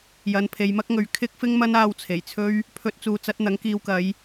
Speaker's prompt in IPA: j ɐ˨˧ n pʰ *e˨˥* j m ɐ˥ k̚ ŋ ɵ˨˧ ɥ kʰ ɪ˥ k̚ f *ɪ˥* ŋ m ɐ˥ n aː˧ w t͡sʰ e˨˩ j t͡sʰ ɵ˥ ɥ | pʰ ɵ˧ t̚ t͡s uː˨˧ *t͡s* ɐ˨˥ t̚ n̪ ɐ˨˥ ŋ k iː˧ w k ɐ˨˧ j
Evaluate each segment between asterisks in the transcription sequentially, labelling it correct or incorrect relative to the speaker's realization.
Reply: incorrect: e˨, correct, correct

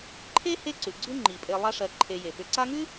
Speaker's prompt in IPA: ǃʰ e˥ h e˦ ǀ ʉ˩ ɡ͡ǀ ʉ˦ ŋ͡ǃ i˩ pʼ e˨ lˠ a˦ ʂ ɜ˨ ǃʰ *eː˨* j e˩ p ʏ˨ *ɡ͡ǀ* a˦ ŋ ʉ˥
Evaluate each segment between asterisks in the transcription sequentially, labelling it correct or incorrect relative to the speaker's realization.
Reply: incorrect: e˨, incorrect: ǀ

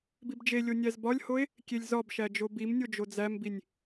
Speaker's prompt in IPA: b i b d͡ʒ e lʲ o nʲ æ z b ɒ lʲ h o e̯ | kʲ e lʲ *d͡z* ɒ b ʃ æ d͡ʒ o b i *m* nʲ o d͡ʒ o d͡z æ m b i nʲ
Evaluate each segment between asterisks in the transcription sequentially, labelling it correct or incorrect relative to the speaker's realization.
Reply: incorrect: z, correct

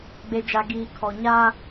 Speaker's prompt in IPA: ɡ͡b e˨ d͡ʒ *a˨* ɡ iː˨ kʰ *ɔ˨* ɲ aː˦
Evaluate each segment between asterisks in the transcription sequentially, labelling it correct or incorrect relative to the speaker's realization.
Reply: correct, correct

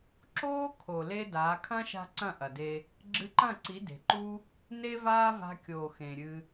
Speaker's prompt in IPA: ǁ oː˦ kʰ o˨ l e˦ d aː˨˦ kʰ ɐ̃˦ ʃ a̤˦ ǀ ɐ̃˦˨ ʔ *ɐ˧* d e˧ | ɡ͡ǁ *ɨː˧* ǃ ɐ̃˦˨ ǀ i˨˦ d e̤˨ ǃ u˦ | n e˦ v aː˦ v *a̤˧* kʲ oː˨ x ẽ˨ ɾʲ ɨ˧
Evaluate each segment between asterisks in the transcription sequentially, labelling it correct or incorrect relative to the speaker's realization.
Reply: incorrect: ɐ˨, incorrect: ɨ˧, correct

